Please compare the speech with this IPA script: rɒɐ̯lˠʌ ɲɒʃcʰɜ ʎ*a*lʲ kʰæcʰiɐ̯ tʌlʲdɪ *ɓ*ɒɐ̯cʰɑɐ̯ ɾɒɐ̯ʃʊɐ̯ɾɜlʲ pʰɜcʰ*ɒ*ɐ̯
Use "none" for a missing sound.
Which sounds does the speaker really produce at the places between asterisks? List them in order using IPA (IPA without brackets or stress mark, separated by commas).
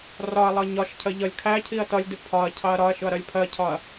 ʌ, pʰ, ɒ